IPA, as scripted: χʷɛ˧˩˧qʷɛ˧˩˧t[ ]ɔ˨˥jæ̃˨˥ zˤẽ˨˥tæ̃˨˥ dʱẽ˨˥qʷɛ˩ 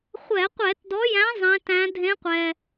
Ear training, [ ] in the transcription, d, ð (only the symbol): d